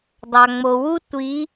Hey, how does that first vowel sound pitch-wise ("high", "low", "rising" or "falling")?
low